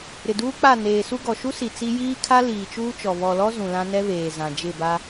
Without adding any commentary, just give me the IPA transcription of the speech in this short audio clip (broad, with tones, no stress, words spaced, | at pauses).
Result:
ɾɪ˨duː˦k͡pa˦˨ neː˨su˦ɡɔ˨ ʃu˦si˨ t͡si˦ jiː˦kʰa˦ liː˨t͡ʃuː˦t͡ʃɔ˨ βɔ˨lɔ˦ zũ˨lã˦ nɛ˦βeː˨ zã˨d͡ʒɪ˦˨ba˦